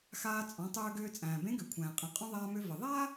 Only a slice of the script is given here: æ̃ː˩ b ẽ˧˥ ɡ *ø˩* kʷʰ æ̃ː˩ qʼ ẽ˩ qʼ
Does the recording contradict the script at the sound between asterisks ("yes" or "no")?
no